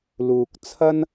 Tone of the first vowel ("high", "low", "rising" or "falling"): low